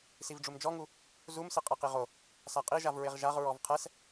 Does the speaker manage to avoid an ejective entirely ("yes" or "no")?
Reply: no